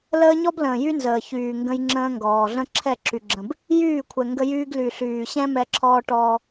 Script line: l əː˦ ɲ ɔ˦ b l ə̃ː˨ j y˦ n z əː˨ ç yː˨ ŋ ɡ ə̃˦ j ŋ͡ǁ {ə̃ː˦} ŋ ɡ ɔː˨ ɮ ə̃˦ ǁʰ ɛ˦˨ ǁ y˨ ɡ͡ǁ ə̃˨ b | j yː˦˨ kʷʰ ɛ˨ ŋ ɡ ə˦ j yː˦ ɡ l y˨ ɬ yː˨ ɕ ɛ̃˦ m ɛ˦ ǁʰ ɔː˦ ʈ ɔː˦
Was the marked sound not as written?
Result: no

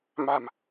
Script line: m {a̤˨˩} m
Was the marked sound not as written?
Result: no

